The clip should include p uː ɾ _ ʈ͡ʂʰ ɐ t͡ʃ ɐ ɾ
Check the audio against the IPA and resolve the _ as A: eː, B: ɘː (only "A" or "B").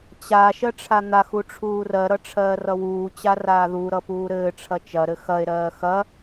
B